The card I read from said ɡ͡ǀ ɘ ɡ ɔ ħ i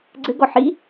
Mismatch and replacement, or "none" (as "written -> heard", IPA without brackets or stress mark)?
none